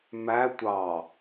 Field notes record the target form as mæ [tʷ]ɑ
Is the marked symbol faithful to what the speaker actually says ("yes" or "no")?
yes